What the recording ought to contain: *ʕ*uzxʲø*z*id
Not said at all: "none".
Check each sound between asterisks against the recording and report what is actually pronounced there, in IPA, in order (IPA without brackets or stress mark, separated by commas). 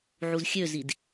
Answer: ʕ, z